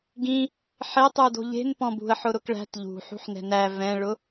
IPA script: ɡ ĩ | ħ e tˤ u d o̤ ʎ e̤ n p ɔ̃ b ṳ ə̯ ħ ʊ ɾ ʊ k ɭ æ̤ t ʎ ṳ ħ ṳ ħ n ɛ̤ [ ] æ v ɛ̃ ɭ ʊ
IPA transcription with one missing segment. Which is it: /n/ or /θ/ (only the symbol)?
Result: n